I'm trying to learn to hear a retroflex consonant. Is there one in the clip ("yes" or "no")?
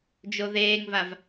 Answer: no